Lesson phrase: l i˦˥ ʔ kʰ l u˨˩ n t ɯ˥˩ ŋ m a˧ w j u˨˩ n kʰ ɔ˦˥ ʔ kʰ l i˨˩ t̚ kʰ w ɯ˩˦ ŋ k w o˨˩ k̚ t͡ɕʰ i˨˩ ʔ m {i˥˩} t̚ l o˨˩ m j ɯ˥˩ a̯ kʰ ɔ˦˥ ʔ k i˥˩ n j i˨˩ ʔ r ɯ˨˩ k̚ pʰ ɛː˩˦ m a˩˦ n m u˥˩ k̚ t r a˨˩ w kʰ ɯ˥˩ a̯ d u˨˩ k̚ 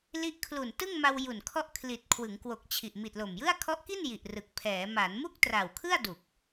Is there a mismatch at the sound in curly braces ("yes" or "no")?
yes